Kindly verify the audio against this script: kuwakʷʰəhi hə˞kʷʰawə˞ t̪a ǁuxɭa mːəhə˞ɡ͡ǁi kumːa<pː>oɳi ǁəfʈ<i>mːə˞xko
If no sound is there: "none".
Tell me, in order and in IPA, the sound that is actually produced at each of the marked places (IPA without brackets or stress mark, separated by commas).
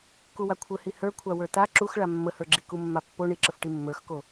pː, i